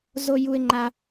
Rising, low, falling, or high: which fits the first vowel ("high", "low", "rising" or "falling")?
high